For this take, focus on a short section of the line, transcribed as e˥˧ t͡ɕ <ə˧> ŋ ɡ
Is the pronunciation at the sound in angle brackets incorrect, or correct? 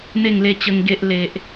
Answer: correct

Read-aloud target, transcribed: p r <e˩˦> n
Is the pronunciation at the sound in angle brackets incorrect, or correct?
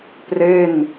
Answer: incorrect: e˥˩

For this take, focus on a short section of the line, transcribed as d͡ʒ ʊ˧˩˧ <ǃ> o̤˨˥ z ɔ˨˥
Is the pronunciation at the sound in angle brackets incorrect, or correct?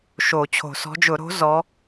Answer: incorrect: ɾ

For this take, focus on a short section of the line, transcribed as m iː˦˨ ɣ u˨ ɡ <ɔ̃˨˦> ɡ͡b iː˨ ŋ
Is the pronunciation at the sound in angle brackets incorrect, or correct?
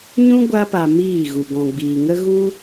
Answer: incorrect: ɔ̃˨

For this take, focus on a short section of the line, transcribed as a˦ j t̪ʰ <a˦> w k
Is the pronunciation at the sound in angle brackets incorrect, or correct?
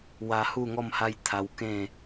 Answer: incorrect: a˧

